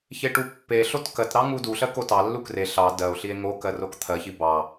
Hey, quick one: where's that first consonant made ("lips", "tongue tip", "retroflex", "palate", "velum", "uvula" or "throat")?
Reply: palate